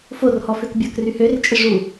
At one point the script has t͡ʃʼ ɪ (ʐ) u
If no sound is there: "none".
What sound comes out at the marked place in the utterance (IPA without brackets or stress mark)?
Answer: ʐ